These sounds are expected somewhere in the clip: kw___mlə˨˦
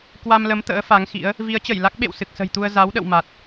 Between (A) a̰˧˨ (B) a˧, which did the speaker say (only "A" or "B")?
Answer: B